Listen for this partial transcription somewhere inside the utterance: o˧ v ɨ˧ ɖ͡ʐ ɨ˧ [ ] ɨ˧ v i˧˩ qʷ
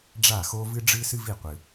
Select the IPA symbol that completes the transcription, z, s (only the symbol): s